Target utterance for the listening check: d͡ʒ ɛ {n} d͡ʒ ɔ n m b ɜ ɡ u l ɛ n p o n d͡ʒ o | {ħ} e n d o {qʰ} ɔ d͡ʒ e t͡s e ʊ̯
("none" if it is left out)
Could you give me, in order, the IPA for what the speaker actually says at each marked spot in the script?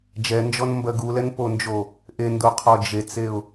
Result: n, ʔ, qʰ

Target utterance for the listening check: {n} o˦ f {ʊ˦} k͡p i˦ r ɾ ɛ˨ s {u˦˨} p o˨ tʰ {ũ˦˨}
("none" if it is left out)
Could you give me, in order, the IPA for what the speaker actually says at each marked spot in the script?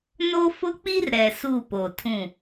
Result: n, ʊ˦, u˦˨, ũ˦˨

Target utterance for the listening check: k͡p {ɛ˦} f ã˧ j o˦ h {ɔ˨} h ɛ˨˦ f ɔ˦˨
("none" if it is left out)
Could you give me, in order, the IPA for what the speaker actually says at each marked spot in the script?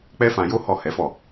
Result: ɛ˦, ɔ˦˨

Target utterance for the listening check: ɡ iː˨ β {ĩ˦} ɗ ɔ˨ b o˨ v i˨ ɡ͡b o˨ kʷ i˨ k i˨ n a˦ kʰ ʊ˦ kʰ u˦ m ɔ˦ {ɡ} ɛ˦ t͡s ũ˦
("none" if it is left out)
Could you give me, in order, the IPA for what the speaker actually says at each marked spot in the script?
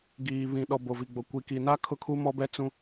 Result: ĩ˨, b

